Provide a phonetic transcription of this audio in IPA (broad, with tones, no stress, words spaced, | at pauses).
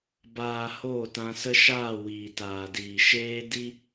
baː˨ hoː˦˨tã˧sə˦ ʃaː˦˨ wiː˨taː˨diː˨ ʃeː˧ di˦